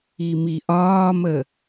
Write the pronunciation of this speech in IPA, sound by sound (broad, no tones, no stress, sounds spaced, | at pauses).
i m i ʔ ɒː m ə